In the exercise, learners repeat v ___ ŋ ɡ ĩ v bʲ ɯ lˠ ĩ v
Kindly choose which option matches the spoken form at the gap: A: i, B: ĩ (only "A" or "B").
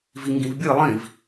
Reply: A